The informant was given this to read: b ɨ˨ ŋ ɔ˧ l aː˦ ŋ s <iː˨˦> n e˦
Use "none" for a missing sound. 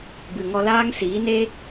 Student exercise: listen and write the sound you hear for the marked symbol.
iː˨˦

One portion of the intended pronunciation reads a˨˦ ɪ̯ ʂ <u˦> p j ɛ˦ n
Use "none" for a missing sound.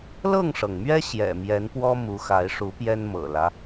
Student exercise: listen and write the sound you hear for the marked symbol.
u˨˦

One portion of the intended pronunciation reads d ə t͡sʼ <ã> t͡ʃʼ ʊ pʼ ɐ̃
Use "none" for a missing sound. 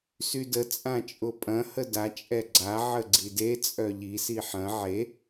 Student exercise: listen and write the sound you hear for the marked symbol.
ã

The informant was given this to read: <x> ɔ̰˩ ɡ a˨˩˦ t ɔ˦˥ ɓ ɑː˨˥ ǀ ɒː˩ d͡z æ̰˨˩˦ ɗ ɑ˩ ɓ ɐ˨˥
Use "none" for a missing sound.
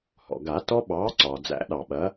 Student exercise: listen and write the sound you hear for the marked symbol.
h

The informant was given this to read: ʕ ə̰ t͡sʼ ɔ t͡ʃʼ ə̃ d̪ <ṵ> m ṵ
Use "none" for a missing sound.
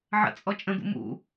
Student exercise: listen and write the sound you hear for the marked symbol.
ṵ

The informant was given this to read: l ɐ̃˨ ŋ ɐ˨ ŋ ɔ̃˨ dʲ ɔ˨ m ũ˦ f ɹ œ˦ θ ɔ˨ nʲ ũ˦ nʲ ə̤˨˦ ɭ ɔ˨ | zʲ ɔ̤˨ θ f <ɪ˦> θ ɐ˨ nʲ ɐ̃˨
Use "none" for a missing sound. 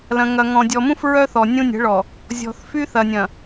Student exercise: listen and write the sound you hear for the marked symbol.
y˦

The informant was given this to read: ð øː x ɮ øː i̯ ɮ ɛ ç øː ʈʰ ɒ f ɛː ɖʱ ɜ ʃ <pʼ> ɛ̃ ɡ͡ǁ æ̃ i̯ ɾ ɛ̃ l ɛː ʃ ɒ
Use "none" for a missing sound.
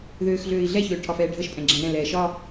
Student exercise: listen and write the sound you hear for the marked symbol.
pʼ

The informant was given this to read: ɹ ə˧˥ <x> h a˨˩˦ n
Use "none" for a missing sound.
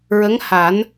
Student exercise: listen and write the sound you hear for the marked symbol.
ŋ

